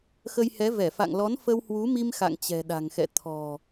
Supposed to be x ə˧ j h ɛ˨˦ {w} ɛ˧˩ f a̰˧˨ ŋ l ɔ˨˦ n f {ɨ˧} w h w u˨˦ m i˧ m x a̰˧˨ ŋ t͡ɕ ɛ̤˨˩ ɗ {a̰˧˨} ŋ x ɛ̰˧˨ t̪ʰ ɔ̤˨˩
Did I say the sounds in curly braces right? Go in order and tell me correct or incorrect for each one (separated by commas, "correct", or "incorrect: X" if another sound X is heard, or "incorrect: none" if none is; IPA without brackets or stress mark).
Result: incorrect: v, incorrect: ə˧, incorrect: a̤˨˩